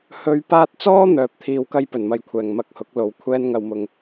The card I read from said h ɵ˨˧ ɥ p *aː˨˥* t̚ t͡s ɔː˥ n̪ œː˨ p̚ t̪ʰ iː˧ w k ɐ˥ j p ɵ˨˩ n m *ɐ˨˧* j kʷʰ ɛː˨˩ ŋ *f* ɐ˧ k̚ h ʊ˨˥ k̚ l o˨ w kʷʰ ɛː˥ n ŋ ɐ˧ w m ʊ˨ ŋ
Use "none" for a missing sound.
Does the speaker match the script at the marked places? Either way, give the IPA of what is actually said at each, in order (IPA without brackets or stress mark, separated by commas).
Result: aː˧, ɐ˨˧, m